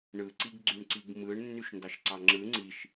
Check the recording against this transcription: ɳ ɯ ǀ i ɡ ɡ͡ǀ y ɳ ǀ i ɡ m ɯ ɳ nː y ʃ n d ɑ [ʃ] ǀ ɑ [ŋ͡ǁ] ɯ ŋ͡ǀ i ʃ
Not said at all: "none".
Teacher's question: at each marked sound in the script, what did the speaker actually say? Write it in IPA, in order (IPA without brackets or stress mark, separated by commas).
ʃ, ŋ͡ǁ